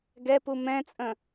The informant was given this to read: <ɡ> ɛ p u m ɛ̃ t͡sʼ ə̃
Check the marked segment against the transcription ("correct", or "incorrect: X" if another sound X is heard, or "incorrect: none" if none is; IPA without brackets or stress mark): correct